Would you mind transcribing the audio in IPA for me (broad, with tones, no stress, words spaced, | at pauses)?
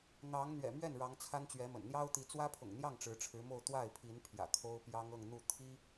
n̪ɑ˧˥ŋ n̪ɥɛ̰˨˩mɥɛ˥˩n ɻɑ˧˥ŋt͡sʰa˥nt͡ɕɥɛ˧˥mə̰˨˩n n̪jɑ˥ʊ̯t̪i˧˥ t͡swä˥pʰʊ̰˨˩ŋn̪jɑ˥˩ŋ ʈ͡ʂɻ̩˧˥ʈ͡ʂʰɻ̩˧˥mo˥˧ʊ̯ t̪wa˥˩ɪ̯pʰi˧˥npʰjä̰˨˩ kʰo˥ʊ̯ pjɑ˥ŋɤ˥˧ŋ n̪u˥˩t̪ʰi˥